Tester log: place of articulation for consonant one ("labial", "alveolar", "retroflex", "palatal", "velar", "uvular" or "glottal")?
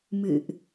labial